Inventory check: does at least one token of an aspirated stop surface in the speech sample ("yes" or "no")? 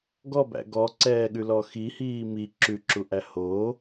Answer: no